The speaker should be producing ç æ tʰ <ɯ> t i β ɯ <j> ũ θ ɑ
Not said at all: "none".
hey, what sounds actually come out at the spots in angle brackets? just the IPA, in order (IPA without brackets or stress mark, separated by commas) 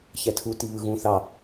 u, ɣ